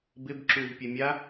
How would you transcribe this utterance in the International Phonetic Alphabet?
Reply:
b ɪ b ǁ u v pʲ ɛ mʲ a

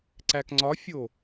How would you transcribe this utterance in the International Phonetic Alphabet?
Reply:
ǀ æ k ŋ͡ǀ ɒ fʲ o

